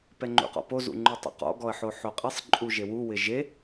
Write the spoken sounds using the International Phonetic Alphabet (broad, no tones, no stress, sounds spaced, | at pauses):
p ɛ ŋ͡ǃ ṵ q ɔ̰ p o z ṵ ŋ͡ǃ u tˤ ṵ q ɔ̰ ɡ ɔ ə̯ ħ o ħ o qʼ e sˤ ǃʼ u ʒ e w u w ɪ ʒ e